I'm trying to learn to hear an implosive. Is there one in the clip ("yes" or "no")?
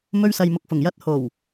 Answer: no